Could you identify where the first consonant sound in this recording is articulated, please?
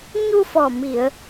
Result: palatal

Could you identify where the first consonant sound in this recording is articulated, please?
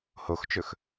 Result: glottal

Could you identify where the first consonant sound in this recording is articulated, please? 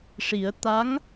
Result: retroflex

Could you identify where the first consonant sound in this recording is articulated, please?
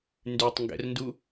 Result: alveolar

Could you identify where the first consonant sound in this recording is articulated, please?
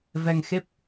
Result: labial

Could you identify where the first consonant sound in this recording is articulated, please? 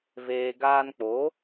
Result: labial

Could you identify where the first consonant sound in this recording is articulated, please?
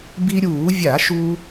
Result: labial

